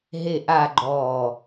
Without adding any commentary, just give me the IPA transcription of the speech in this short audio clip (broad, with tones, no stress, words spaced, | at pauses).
ɦe˥˧ʔa˥˧ɡ͡ǃɔː˧˩